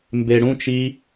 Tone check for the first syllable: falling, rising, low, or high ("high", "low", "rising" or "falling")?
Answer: low